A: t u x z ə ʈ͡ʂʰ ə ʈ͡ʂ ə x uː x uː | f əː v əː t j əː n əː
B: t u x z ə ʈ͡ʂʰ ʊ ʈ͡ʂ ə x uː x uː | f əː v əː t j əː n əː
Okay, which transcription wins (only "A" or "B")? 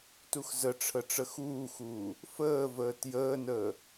A